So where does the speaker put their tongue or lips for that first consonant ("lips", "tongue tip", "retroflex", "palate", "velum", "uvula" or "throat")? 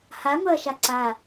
throat